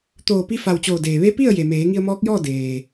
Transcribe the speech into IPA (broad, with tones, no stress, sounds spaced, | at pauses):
t̪ oː˧˩ p i˧ f a˧˩ w t͡ɕ oː˧˩ d eː˩ ʋ e˧˥ p i˥˨ ə̯ j e˩ m eː˩˧ ŋ i˧ ə̯ m ɔː˧˥ k̚ j ɔː˥˨ d eː˩